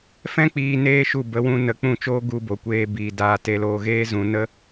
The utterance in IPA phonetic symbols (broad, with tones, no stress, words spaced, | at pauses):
fɛ̃˦ k͡piː˧neː˦ʃu˦˨ bə˨˦wũ˧nə˨˦ k͡pũ˦˨t͡ʃoː˦ ɡu˧bo˨kʷeː˧ biː˨ daː˧te˧loː˧ ɣeː˦zũ˧nə˦